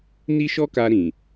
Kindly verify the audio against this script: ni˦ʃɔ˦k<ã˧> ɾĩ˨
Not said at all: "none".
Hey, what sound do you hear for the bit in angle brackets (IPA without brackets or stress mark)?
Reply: a˧